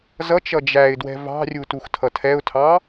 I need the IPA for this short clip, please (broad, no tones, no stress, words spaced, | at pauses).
zʌt͡ʃʌ d͡ʒæɪ̯dwɛ̤ vɑ̤rʲu tuxtʰʌtʰɛʊ̯tʰɑ